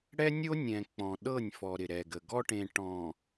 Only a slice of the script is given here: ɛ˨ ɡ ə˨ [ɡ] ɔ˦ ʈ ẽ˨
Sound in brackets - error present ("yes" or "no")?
no